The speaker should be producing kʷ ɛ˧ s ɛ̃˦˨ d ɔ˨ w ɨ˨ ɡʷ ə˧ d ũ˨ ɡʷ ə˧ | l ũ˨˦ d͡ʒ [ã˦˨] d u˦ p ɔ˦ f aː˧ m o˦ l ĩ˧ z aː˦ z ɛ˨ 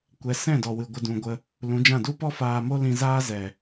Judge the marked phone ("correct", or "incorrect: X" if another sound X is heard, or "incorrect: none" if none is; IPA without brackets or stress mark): correct